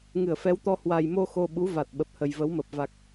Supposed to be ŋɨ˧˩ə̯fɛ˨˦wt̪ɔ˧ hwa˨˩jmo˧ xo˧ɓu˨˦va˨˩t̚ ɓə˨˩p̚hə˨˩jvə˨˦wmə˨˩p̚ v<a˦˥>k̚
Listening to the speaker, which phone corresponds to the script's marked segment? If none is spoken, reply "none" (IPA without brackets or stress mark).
a˨˩